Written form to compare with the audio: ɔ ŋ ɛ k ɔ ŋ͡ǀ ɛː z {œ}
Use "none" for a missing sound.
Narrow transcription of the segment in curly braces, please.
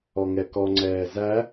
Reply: æ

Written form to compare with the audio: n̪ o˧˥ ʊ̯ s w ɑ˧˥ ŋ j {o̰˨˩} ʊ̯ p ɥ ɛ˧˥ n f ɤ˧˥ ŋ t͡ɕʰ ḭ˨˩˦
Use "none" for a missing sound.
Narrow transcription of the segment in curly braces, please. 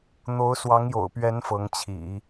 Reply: o̰˨˩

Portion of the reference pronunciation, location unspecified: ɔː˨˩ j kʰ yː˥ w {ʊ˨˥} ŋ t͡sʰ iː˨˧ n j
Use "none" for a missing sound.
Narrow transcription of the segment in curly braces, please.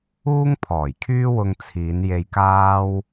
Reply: ʊ˧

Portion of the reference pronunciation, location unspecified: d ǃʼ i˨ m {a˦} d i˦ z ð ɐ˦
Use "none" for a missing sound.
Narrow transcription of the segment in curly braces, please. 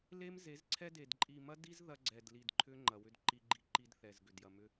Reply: ɐ˦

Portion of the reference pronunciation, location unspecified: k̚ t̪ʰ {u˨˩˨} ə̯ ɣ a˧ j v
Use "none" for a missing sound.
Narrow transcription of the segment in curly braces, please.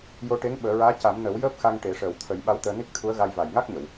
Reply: u˧˥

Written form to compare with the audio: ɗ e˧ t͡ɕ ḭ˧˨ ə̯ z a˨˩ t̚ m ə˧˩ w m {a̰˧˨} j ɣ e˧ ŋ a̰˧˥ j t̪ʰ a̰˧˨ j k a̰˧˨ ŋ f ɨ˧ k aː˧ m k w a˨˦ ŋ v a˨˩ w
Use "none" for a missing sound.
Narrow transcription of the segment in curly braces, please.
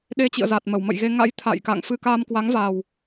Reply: ə̰˧˨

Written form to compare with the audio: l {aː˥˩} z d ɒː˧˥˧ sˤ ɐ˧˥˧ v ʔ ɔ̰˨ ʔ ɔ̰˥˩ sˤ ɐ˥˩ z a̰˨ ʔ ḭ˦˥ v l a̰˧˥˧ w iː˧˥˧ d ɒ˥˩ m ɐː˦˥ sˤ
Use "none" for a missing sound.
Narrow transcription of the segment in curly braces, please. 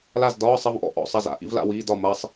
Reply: a˥˩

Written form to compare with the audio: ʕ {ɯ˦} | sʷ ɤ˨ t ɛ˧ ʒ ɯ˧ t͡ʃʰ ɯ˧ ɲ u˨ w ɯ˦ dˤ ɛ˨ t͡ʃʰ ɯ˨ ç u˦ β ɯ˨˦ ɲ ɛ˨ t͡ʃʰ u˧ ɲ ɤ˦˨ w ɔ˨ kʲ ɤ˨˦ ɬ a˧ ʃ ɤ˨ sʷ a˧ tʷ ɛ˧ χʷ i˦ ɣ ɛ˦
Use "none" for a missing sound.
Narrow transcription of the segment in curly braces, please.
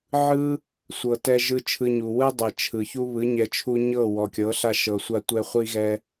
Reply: ɯ˦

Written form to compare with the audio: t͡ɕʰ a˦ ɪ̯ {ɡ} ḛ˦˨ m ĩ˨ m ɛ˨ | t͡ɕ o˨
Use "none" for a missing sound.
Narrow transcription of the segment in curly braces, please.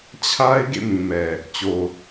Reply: ɡ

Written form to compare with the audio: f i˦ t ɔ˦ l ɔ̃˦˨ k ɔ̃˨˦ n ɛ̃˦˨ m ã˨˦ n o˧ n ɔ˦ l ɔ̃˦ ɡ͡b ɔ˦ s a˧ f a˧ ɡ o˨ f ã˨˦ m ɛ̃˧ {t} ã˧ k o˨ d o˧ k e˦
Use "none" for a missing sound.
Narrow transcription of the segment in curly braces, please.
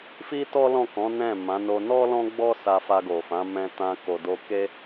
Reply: t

